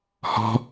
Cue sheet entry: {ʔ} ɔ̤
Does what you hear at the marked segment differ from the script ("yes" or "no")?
yes